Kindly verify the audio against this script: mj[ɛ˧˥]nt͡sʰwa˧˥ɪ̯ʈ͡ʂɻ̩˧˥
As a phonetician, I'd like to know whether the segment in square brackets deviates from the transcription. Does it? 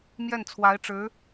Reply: yes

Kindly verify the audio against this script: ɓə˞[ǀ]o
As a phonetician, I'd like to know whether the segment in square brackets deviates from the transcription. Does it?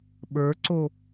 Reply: no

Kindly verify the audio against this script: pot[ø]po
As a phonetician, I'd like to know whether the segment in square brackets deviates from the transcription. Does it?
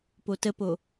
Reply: yes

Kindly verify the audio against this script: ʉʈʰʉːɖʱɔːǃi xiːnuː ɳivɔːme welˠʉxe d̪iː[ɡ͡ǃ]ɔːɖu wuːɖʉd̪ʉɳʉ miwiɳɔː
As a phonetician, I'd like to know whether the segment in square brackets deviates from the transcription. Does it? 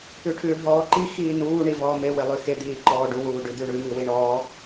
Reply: yes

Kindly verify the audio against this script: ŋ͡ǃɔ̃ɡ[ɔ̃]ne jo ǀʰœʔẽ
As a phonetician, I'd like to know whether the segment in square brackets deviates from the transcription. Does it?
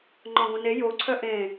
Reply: yes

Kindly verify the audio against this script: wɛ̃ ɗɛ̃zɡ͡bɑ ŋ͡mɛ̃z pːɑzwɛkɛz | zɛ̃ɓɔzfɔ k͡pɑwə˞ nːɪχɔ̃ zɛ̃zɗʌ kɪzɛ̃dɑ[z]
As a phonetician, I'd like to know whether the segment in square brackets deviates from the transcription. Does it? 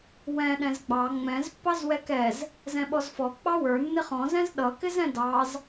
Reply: no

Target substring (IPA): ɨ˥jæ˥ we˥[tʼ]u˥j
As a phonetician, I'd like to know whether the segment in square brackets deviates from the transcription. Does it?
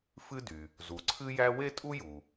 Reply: no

